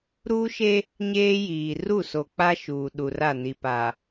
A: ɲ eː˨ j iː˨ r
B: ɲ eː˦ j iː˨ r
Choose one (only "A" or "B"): B